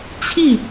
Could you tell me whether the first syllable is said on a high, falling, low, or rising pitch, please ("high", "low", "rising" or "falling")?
falling